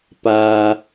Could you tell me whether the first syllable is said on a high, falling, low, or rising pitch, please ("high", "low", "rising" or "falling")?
high